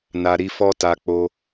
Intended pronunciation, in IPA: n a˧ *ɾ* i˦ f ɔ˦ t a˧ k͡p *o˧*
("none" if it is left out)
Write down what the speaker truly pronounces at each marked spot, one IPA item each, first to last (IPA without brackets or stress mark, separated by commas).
ɾ, o˧